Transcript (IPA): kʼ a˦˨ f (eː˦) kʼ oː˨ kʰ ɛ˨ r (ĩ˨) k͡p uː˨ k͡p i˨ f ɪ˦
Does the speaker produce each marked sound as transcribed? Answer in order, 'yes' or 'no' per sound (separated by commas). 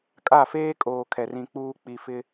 yes, yes